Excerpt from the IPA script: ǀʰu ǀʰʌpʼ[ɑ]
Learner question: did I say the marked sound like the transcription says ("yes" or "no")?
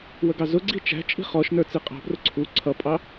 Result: yes